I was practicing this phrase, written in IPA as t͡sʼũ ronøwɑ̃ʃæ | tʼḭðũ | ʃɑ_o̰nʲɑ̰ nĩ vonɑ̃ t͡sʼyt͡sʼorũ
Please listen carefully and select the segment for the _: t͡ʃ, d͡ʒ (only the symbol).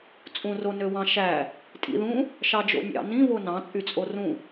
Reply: d͡ʒ